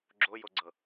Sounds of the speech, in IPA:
ɡ͡ǁojoɡ͡ǀɤ

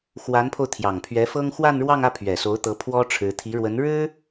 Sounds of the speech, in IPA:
xwa˧˥npʰo˧ʊ̯ t̪ʰjɑ˨˩ŋpʰɥɛ˧˥fɤ˥ŋ xwa˥˧nɻwɑ˥˧ŋä˥˩pʰɥɛ˨˩ so˧˥ʊ̯t̪ɤ˧˥ pʰwɔ˥ʈ͡ʂʰɻ̩˧˥ t̪ʰi˧˥ɻwə˧˥nɻɻ̩˥

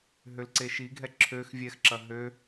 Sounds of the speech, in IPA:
ɦølǀeʃiɡʱɛ ǁʰøx vʲɛxǁɐ ɦø

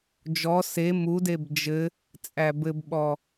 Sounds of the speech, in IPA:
d͡ʒɔ se mudeb d͡ʒɘ | t͡sʼæbɘbɓɔ

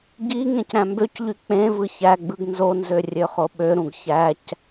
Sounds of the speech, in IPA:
ɟi ŋẽcɾæ̃mbøcʎy k͡pẽvɯ çæɡ͡bɯɡ nzonzø rʲøχoɓøɾũɡ çæc

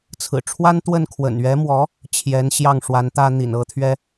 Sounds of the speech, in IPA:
t͡sʰɹ̩˨˩ʈ͡ʂʰwa˥nt̪wə˥˩n kʰwə̰˨˩nɥɛ˧˥mwɔ˧˥ | t͡ɕʰjɛ˧˥nɕjɑ˥˩ŋʂwa˧˥nt̪ä˥ n̪ḭ˨˩nɤ˧˥t̪ʰɥɛ˥

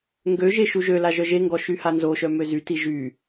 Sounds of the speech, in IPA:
ŋɡøʒe ʃuʒøla ʒœʒeŋɡɔ ʃyhanzoʃœ møzyti ʒy

